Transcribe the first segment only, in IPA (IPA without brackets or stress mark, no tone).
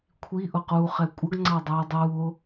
kʷʰ